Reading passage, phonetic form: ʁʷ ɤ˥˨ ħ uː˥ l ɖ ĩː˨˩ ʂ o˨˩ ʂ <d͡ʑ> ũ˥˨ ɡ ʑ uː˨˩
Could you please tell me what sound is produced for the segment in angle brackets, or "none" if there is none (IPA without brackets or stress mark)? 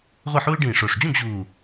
d͡ʑ